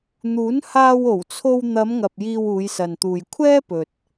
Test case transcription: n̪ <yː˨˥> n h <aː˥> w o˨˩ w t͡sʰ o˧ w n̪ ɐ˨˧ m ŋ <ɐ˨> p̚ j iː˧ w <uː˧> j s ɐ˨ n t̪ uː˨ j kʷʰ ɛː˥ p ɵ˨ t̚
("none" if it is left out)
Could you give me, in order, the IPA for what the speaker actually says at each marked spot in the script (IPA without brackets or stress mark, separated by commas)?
uː˨˥, aː˧, ɐ˨, uː˨˧